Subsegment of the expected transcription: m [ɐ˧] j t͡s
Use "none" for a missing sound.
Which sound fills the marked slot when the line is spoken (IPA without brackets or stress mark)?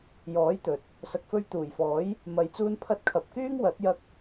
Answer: ɐ˧